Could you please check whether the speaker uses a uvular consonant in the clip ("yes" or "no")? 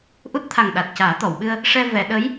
no